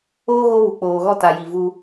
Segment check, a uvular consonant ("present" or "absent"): absent